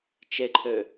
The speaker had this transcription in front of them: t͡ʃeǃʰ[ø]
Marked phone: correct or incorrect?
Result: correct